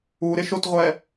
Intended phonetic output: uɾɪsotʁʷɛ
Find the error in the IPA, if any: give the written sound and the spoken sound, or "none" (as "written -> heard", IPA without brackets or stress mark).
s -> ʃ